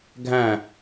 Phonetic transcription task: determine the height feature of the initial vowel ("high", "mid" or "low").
low